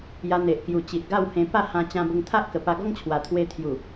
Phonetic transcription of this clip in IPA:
ja˧n̪e˨ʔkju˨˩ t͡ɕi˨ʔɡa˥˧whẽ˧ pa˥˧hã˧ t͡ɕã˧bə˧ŋ t̪ʰa˦ʔkə˨˩ pa˧ɡɔ˦ŋt͡ɕʰwa˨˩t̪ʰwe˧ t̪ʰju˨˩

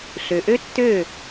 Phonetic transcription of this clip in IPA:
ɬø˩ʔø˥tːø˥˩

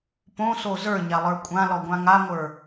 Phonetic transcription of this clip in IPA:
põso zə˞ɲalˠə˞ kʷʼãlɔɡʷã ŋaŋʷə˞

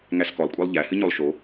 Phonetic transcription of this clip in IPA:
ŋæskɔlˠkʷʼælˠ ʎæhɨɲolˠ ʃo

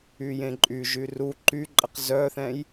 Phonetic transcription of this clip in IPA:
yjẽǃʼyʒy ru ǃyǃʼəq zœθɛ̃j

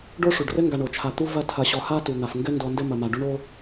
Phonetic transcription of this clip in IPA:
ɖo˥ʂu˩ɖrɘ˥ ŋɡa˨ɳo˩t͡ʃʰa˨t̪u˦ vɐ˦ tʰɐ˨ɕɔ˨ ha˥ tu˩n̪a˩f ŋɡɘ˥ndɔ˨ndɘ˦ mɐ˩ma˩ ɖu˦ɳo˥

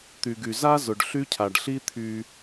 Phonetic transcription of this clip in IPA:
t̪y˩ɡy˩za˥ zʊ˩ɖɬy˥cʰa˩ɖ ɬi˥t̪ʰy˧

